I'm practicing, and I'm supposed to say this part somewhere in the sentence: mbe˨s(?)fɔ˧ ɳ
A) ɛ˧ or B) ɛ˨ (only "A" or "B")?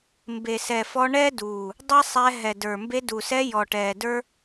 B